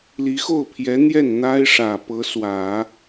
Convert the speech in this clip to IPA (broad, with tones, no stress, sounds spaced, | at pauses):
l i˧˥ x o˥˩ ʊ̯ pʰ j ɛ˧˥ n̪ j ɛ˥˩ n n̪ a˥ ɪ̯ ʂ ä˨˩ p ɤ˧˥ s w ä˨˩˦